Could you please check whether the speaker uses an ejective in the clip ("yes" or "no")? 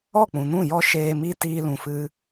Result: no